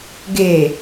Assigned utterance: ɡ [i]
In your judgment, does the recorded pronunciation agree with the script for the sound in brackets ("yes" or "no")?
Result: no